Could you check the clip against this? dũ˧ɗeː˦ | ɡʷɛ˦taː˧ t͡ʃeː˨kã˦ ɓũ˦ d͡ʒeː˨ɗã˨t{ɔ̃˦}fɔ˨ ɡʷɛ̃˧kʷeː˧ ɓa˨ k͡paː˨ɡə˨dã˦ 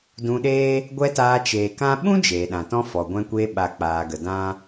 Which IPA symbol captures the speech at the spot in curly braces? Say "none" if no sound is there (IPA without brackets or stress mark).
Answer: ɔ̃˦